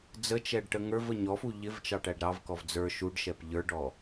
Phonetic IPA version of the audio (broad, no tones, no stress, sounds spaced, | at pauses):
d͡z ə t͡ʃ ɛ ɖ ʈ ə ŋ ə˞ v ə ɲ ɔ f u ʎ ɪ v t͡ʃ ɑ ʈ æ ɖ ɾ ɑ v k ɔ v d͡z ə˞ ʃ u ɖ ʃ ɛ p ʎ ə˞ ɖ ɔ